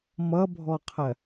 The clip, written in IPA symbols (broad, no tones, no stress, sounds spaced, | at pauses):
m ʌ bʱ ɔ qʰ ɜ